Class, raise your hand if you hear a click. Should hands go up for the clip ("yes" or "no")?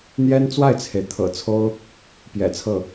no